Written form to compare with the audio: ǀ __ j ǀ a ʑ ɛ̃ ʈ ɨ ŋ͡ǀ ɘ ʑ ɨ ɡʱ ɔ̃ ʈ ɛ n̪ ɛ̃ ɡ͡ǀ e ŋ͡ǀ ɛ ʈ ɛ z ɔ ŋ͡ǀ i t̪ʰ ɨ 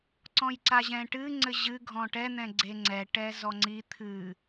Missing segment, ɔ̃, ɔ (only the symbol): ɔ̃